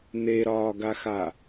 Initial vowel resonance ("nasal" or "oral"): oral